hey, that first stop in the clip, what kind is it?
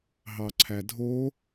click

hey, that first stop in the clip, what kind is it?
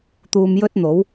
plain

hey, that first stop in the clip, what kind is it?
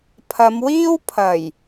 aspirated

